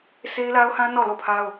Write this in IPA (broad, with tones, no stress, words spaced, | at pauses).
sʰe˦ɪ̯la˦ʊ̯hã˦ nɔ˦˨lo˦˨pʰa˦ʊ̯